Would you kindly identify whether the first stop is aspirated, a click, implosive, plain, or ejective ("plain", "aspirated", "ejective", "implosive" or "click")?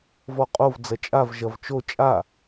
ejective